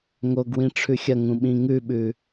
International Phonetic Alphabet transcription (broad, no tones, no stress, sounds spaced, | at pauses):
ŋ o ɡ w ĩ ʈ͡ʂʰ ʉ xʲ ɐ ŋ ũ ɓ ĩ ŋ ʉ ɓ ʉ